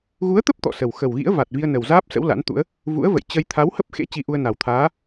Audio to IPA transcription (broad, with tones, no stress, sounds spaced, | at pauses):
ɣ u˨˦ ə̯ t̪ ə˦˥ p̚ t̪ ɔ̰˧˨ s ə˨˩ w x ə˨˩ w ɣ ḭ˧˥ ə̯ v a˨˩ t̚ v i˧ ə̯ n ə˨˩ w z aː˦˥ p̚ s ə̰˧˥ w l a̰˧˥ n t̪ ṵ˧˥ ə̯ | v ṵ˧˥ ə̯ v ə̰˧˨ j t͡ɕ ə˧ j t̪ʰ a˨˦ w h ə˦˥ p̚ x ḛ˧˥ t͡ɕ i˧ ʔ u˧ ə̯ n a˨˩ w t̪ʰ aː˨˦